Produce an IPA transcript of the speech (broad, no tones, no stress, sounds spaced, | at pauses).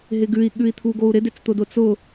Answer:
ɦ ɪ ɡ ʉ i̯ ɠ ʉ i̯ t̪ʰ u ɡ o u̯ ɾ ɪ d ɪ t͡s t̪ ʊ d ʊ t͡s ʊ